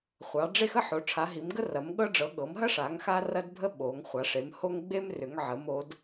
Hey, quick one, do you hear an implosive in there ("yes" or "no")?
yes